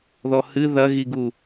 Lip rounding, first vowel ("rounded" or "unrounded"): rounded